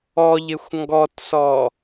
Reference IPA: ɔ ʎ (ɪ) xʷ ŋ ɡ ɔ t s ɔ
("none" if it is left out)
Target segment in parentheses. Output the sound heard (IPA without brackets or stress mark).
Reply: ɪ